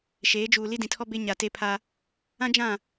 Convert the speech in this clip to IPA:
ʃ eː˨˦ d͡ʒ uː˨ l i˦ d ĩ˨ tʰ ɔ˦ b e˦ ɲ a˨ t e˦ pʰ a˦ | ã˦ d͡ʒ ã˦˨

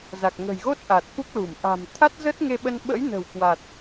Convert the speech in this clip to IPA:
z a˨˩ k̚ ŋ ə̤˨˩ j ɣ o˦˥ t̚ ʔ a˨˩ t̚ f u˦˥ k̚ l u˧˩ m ʔ a̤˨˩ m t̪ʰ a˦˥ t̚ z ə˦˥ t̚ ŋ e˧ ɓ ə˧ n ɓ ə̰˧˥ j n ə̤˨˩ w k w a˨˩ t̚

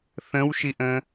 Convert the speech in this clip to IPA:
θ ə̃ w ʃ i ʔ ə̃

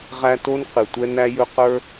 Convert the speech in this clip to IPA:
ʁ æ˦ t o˥ n q ɨ˩ tʷ ɛ˥ n æ˥ j ɵ˥ q ə˞˥

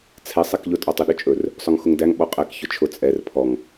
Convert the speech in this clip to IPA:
t͡sʰ ɛ sˤ ɛ k ʎ ʊ tʼ ɔ tˤ ʊ ɗ ɵ t͡ʃʼ ɵ r | sˤ ɵ ŋ x ʊ ŋ d æ ŋ ɓ ɔ qʼ ɛ k ç ʊ t͡ʃʰ ʊ t͡sʼ ɛ r pʰ ɔ ŋ

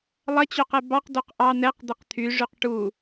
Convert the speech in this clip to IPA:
lˠ ɐ t͡ɕ o q ɛ b ɑ q d o q ʔ ɑ n̪ ɛ q d̪ e q t̪ʰ y ʐ y q ʈ u

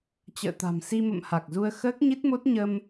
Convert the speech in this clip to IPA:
t͡ɕ ə̰ː˧˨ t̪ a̤˨˩ m s i˧ m ə̰˧˨ m h a˨˩ k̚ z u˧ ə̯ x əː˦˥ k̚ ɲ i˦˥ t̚ m o˦˥ t̚ ɲ ə˧ m

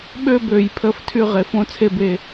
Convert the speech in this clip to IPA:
ɓ ø˥˧ b ø˨˩˦ j pʰ ə˥˧ f tʰ y˥˧ ʁ e˨˥ f õ˥˧ t͡sʰ e˥˧ b e˥˧

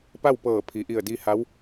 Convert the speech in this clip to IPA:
p a˥˨ w p ɤː˧˩ pʰ i˩˧ ʔ i˧˩ ə̯ d i˧ h a˧˥ w

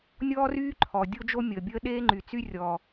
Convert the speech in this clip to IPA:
nʲ ɔː˥ r yː˥ ǃʰ ɔ˩ dʲ o˥ d͡ʒ o˥ mʲ əː˩ bʲ əː˥ ɗ eː˥ ŋ͡ǃ y˩ t͡s y˥ rʲ ɔ˩

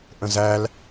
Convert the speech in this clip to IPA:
ʔ ə̃ z æ l

